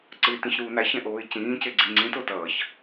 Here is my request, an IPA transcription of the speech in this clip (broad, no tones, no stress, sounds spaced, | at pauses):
ǀ ɯ ɪ̯ t ĩ ç ɾ uː n a ç ɛ̃ ʔ oː ɪ̯ c ĩː c e ɡ͡ǀ i ŋ͡ǀ ĩ t o t ʌː ç